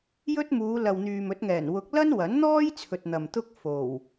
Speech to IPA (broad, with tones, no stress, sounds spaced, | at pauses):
j ɵ˥ t̚ m uː˨˧ l ɐ˨ w n̪ yː˨ m ɵ˨˥ t̚ ŋ ɛː˨˩ n w ʊ˨˥ k̚ l ɐ˥ n w ɐ˨˥ n n̪ ɔː˥ j t͡sʰ ɵ˨ t̚ n̪ ɐ˨ m t̪ ʊ˥ k̚ f o˨˩ w